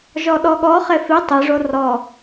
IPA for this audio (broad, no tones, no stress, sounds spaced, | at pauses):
ʒ ɔ ɗ ɔ ɠ ɔ χ e f i tˤ i ʐ o r ɔ